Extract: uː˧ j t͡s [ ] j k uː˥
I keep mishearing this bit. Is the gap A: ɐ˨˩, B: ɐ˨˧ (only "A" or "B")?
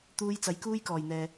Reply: B